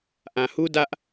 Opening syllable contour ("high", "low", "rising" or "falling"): low